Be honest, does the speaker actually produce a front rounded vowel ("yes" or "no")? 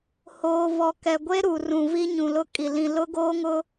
no